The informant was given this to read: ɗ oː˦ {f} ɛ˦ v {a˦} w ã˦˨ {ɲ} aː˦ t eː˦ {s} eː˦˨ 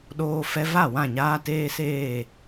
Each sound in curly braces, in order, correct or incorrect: correct, incorrect: a˦˨, correct, correct

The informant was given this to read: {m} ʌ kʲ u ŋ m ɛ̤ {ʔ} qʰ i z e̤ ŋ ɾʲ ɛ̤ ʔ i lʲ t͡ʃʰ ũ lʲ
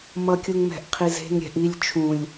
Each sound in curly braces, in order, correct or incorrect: correct, correct

